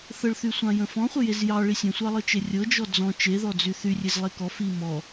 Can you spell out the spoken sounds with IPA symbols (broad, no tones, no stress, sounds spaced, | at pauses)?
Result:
θ ə ɭ θ y sʷ ɑ̃ j ə̃ f ɔ̃ χʷ ə j e z j ɑ ɭ i sʲ ə̃ sʷ ɑ lˠ ɤ t͡ʃ e rʲ ɤ d͡ʒ ɔ d͡z ɔ̃ t͡ʃ e ð ɔ d͡z y θ y rʲ e z lˠ e k ɔ f i m ɔ